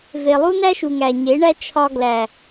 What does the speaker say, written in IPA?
v e˨ lˠ u˦ n æ˦ ʃ u˨ ŋ æ˨ ɲ e˨˦ ɳ æ˦ t͡ʃʰ ɒ˦ ɡ l æ˨

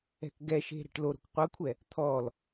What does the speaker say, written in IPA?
ɛ̤ k ɡ ɛ ʃ e̤ ɾ ɛ̤ ʈ l o ɾ o̤ k qʷ ɤ kʷʰ ɛ | t̪ʰ ɔ l

